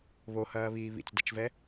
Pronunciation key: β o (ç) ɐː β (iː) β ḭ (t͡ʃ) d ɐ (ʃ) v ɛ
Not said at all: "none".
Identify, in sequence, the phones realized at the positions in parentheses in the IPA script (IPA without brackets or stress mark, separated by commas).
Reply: h, iː, t͡s, t͡ʃ